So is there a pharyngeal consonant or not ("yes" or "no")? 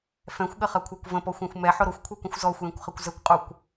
yes